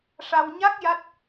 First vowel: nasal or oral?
oral